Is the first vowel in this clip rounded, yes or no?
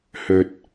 yes